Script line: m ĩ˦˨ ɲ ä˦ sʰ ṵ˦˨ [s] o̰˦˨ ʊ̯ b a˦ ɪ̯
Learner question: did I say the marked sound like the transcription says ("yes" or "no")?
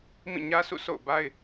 yes